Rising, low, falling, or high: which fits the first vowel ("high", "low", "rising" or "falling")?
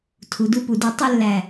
rising